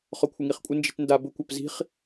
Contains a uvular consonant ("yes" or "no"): yes